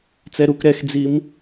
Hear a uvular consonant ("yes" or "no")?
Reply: no